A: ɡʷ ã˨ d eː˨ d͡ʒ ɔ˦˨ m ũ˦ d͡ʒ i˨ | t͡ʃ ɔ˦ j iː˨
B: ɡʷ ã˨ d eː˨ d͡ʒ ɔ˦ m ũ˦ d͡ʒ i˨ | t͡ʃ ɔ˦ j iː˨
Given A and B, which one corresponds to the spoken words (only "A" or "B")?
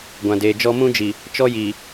B